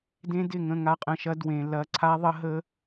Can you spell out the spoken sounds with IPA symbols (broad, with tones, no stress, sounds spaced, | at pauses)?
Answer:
d ẽ˦ d ɪ˦˨ ŋ ə̃˦˨ ŋ a˦ qʼ ə̃˧ ʃ ɐ˦ d w ẽ˧ l ɐ˦ ǀʰ a˦ ðˤ ə˦ ɦ ə˦